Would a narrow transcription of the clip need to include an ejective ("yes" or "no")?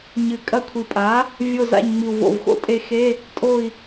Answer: yes